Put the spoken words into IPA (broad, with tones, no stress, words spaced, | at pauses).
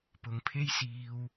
pʊ˨˧ŋpʰe˥j siː˧w